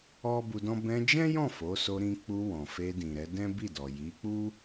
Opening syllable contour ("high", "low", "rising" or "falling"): high